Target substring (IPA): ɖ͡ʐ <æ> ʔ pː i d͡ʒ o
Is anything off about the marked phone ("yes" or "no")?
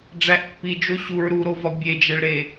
no